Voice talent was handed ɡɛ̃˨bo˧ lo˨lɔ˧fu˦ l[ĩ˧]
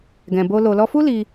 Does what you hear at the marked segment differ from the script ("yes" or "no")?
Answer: yes